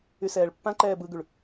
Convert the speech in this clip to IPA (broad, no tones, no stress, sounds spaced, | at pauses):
y s ɛː ɭ pː ã ǃ ɛː b ɯ ɡ y ɭ